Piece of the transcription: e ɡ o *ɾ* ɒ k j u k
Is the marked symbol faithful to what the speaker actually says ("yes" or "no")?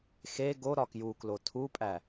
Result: yes